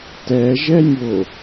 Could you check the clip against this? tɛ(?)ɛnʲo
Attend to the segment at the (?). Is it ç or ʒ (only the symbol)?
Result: ʒ